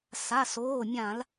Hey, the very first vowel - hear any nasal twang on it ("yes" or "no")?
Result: no